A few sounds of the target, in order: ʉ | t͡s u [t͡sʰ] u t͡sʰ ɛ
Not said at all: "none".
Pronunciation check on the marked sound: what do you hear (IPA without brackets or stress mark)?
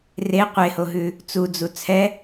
d͡z